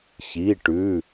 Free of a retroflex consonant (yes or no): no